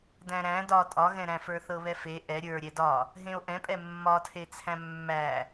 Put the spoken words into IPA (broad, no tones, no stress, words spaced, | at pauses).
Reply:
dæ̃ɾæ̃ dɒ tʼɒɣɛ̃ɾæ̃ fə˞θɤβɛfe ʔɛ ɾʲə˞ɾʲɛ dɒ | ɦẽo̯ʔɛ̃pʼɛ mːɒtʰet͡sʰæ̃ mːæ